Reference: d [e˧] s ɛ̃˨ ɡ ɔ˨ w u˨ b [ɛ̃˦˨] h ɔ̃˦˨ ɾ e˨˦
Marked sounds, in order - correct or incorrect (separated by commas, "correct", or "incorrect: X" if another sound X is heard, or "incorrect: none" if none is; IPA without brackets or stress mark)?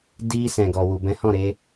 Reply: incorrect: i˧, incorrect: ɛ̃˨˦